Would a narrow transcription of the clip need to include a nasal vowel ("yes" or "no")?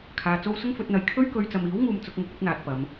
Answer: no